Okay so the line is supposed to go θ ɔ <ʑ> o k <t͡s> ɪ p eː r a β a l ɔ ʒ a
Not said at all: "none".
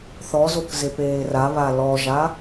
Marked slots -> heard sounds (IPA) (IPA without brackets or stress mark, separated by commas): z, z